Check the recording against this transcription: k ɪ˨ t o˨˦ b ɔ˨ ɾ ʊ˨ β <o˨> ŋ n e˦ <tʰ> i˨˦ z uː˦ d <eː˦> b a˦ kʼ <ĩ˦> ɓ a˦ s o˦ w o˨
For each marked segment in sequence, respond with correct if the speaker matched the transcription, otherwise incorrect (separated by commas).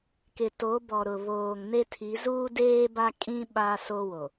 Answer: incorrect, correct, correct, correct